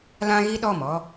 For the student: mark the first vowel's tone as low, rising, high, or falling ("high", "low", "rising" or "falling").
high